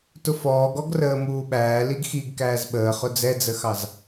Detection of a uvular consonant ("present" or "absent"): present